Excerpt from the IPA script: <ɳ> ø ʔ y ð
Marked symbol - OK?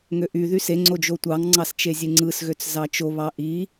no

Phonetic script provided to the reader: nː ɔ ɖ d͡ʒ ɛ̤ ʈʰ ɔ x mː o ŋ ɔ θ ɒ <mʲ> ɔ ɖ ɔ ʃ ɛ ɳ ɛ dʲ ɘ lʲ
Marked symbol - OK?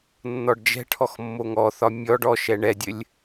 yes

